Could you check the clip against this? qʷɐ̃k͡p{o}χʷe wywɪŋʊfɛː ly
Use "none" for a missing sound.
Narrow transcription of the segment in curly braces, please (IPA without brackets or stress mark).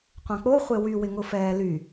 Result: o